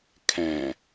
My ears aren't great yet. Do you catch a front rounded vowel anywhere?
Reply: no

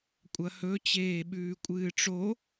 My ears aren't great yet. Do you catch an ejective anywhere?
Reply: yes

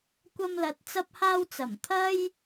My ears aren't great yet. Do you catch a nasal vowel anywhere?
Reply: no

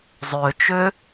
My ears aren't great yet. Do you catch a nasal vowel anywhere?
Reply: no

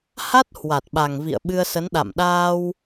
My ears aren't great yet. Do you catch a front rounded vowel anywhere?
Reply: no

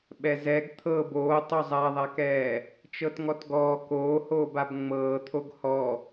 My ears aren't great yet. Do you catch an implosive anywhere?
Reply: yes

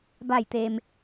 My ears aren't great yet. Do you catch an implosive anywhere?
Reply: no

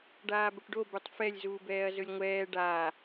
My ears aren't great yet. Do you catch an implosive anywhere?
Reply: no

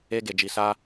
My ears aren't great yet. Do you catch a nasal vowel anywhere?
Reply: no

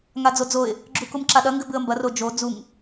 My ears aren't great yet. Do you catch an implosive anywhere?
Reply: yes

